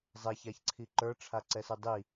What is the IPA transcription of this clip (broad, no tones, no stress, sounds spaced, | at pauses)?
zˤ ɛ ç a ç ǀʰ i ǃ ə˞ ʈ͡ʂʰ a ǀ ɛ s ɯ dˤ i